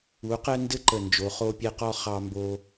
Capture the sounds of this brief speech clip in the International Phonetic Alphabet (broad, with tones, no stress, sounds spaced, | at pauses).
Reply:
u˨˦ q ɛ˦ n d ɘ˦ ǃ ə˨ n d͡ʒ o˨˦ χ o˦ pʲ ɛ˦ q ɔ˦ χ ɑ˧ m b o˧